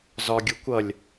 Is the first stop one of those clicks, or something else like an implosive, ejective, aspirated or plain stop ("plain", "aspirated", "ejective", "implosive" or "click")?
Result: plain